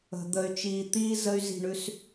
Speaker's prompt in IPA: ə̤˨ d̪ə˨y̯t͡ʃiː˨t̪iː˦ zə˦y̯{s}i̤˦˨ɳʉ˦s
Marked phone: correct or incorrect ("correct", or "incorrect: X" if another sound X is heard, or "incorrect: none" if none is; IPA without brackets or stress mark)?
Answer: incorrect: z